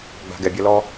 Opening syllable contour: low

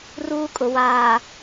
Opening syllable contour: high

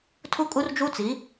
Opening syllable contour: high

